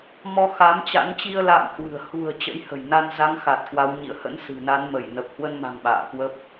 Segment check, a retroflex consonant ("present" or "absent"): absent